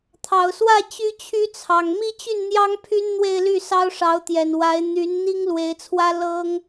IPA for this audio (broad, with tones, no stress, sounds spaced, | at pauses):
t̪ʰ ɑ˨˩ ʊ̯ s w ä˥˩ t͡ɕ y˥ t͡ɕʰ y˥ t͡sʰ ɑ˨˩ ŋ m i˥˧ t͡ɕ y˥˩ n n̪ j ɑ˥ ŋ pʰ y˥ n n̪ w e˥˧ ɪ̯ l y˥˩ s ɑ˥ ʊ̯ ʂ ɑ˧˥ ʊ̯ t̪ j ɛ˨˩ n w a˧˥ ɪ̯ n̪ y˧˥ n n̪ i˥ ŋ l w e˧˥ ɪ̯ t͡sʰ w ä˥ l ɤ˥ ŋ